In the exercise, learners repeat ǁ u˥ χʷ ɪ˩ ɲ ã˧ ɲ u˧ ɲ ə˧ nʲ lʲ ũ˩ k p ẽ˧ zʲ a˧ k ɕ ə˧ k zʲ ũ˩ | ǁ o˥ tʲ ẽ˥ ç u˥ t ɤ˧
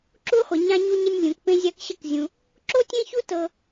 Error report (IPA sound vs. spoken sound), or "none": none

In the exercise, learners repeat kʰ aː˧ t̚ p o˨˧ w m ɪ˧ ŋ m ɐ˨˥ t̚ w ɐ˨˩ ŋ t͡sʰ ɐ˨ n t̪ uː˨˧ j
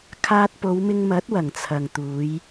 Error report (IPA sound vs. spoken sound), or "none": n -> ŋ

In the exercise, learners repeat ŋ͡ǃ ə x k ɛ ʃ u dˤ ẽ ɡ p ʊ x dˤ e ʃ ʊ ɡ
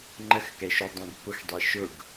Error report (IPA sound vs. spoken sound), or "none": none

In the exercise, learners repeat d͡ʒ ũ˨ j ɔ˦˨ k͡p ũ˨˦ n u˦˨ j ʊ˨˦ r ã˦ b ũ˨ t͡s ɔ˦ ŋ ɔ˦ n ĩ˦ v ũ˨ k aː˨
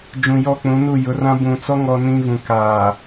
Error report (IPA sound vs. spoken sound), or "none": none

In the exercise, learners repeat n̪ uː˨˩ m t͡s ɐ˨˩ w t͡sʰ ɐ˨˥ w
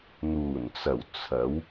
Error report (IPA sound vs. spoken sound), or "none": m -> n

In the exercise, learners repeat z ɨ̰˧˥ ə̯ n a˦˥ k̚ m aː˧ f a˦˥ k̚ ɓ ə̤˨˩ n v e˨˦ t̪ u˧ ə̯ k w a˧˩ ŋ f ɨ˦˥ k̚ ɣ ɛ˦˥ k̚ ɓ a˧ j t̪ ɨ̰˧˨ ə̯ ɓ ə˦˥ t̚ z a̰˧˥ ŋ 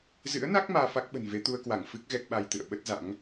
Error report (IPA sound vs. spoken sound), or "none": none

